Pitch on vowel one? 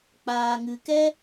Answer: low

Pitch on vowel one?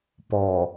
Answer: low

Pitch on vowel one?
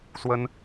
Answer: high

